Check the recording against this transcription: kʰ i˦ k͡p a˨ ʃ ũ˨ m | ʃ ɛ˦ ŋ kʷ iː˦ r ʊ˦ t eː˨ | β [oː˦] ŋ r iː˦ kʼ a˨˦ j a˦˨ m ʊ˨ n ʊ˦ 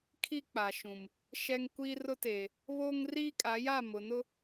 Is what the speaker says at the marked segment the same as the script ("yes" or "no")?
yes